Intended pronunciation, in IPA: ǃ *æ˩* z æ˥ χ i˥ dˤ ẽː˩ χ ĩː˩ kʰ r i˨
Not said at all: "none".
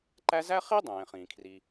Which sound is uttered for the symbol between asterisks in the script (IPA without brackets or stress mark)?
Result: æ˦